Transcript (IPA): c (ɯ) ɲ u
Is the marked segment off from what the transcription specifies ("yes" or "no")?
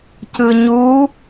no